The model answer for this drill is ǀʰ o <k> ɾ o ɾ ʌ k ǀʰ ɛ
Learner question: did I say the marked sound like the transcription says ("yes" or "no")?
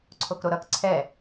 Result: yes